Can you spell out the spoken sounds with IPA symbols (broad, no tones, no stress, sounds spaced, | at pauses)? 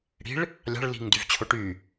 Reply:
ɽ i̤ ɭ | lʲ ɑ̤ ɭ l i̤ ŋ d y v t͡ɕʰ o ʈ y